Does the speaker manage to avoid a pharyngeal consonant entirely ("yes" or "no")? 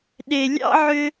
no